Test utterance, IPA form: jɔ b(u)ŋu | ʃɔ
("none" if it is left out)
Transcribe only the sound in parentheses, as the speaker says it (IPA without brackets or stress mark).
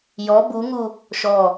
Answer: u